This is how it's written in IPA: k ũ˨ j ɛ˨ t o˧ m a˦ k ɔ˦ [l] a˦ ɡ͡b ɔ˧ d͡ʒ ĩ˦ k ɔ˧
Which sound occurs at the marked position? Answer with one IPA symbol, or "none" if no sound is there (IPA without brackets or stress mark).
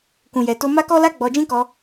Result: l